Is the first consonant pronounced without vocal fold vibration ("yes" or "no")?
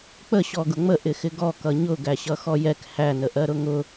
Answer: yes